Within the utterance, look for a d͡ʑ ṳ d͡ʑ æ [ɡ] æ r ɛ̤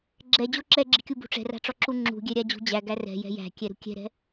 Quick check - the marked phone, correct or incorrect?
correct